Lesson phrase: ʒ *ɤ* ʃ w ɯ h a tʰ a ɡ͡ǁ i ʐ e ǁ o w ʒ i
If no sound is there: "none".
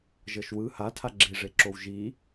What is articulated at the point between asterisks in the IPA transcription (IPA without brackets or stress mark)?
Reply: ɤ